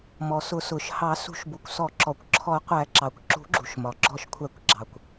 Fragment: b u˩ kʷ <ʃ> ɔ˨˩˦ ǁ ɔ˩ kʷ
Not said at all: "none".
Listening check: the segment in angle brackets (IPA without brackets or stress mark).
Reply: s